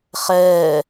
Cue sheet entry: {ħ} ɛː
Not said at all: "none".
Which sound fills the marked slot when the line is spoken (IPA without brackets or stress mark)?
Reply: χ